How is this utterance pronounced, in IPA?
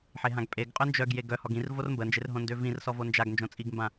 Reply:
ħ e ɦ ã ɡ pʼ e ɡ qʼ œ n d͡ʒ œ ɡ j e ɡ œ h ɔ ɡ ĩ r v o r m b ə n d͡ʒ e r ɦ õ n d ø v ĩ r s ɔ v o n d͡ʒ a ɡ n d͡ʒ õ t͡sʼ i ɡ m b ã

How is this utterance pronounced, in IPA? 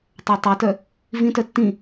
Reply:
tˤ a tˤ o t œ | v ĩ t œ tː ĩ

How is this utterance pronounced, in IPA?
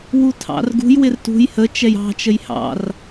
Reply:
w u tʰ ɑ̰ r ɡ ṳ j w ɪ r t ṳ j h ə t͡ʃ ɛ j ɑ̤ t͡ʃ ə j h ɑ̰ r

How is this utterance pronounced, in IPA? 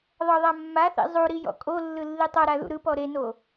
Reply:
ðˤ ɤ ðˤ a mː a θ ḭ zˤ u ɾ i j ɔ̰ kʼ o lː ɯ lː i tˤ ɤ ɾ a ð ṵ ɾ ɯ p ɔ ɾ e n o

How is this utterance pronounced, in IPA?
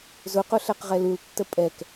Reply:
z ʊ q ʊ ɬ ɛ q ʁ ɛ l u l tː ə pʼ ɛ k

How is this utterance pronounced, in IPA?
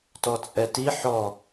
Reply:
t ɔ t͡sʼ ɛ t i ħ ɔ

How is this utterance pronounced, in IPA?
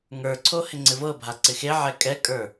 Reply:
ŋ ə˞ ǀʰ o h ɪ ŋ͡ǀ ɪ v ɤ bʱ a ǀ ɪ x e ʕ ɛ kʼ ɛ kʼ ə˞

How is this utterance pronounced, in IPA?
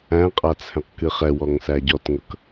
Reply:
æ̃ qʼ a t͡sʰ ɛ̃ q k ɨ χ ɛ w ɔ ŋ s æ ɟ ɔ t ŋ ɤ k

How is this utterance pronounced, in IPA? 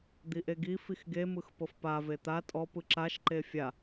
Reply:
d̪ i ʔ e ɡ i f i x ɡ e m ɯ x p ɤ f p a v e t̪ a tʼ ɔ p ɯ ǁ a ʃ ǃ e fʲ a

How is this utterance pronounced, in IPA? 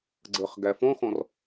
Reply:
ɡ͡ǀ ə χ ɡ æ f ɔ̃ x ɔ̃ r

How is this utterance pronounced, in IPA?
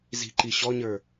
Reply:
z i̤ ǃ i ɕ ɔ ɲ ə˞

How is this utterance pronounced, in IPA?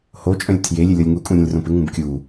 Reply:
h o t͡ʃʼ œ̃ lʲ tʰ j e lʲ ɪ lʲ ɔ lʲ ŋ u kʼ ũ ɾʲ õ lʲ r õ p ɪ ŋ ũ b kʲ u

